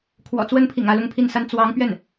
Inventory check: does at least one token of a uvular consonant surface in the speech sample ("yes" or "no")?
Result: no